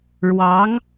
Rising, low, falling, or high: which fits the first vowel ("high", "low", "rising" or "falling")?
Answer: rising